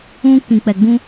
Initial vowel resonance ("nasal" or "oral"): nasal